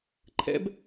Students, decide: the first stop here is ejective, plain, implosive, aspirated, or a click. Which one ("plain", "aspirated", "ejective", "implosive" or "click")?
click